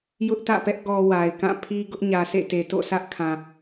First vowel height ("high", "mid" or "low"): high